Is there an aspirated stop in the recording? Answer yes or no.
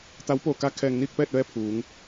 yes